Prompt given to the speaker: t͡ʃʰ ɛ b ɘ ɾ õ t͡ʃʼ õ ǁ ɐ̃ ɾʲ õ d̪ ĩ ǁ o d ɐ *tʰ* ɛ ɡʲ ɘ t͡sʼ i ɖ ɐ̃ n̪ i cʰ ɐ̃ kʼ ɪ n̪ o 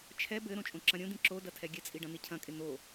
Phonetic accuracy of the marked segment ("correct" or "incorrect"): correct